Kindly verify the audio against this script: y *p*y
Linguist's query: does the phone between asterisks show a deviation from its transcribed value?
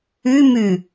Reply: yes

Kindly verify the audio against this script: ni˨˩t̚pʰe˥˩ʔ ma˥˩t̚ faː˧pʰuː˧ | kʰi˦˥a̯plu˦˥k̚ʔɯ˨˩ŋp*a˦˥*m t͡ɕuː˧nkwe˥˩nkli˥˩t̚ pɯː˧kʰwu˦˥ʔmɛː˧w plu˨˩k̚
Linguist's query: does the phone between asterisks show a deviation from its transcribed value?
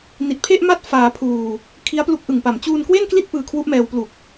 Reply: yes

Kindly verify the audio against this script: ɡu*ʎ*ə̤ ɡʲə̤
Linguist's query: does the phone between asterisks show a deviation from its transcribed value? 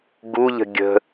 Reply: no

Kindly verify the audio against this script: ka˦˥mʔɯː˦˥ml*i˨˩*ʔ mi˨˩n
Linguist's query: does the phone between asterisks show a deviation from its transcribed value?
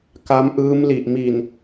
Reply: no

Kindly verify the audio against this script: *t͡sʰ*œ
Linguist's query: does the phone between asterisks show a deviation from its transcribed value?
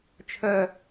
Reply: yes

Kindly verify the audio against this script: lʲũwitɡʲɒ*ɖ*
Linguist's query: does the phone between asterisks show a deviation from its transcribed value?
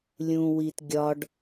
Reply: no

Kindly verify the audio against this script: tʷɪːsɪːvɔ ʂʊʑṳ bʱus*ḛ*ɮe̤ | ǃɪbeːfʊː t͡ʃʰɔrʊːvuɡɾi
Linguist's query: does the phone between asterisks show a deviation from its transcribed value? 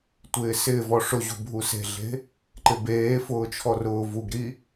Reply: yes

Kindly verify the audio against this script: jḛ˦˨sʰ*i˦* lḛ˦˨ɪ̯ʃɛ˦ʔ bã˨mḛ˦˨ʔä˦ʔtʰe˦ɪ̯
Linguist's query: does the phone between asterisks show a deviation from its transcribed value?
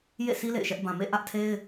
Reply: no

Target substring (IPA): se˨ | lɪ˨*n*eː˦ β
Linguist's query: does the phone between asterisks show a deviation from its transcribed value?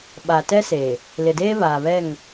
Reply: yes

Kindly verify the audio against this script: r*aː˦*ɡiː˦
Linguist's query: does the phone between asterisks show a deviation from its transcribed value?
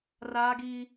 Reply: no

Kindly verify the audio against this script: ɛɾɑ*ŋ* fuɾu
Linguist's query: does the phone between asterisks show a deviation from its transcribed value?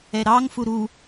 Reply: no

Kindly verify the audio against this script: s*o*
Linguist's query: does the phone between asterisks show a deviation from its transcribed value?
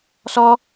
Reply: yes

